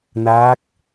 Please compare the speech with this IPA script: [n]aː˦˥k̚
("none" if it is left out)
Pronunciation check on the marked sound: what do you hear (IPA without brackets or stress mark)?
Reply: n